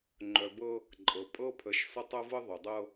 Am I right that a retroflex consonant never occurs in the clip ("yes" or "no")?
yes